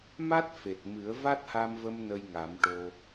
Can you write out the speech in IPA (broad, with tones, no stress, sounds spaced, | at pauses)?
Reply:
m a˦˥ t̚ f e˨˩ t̚ m ɨ˨˩˦ ə̯ v a˦˥ t̚ h a˧ m v ə˧ m n ə˧ j ŋ a˨˩˦ m ʈ o˧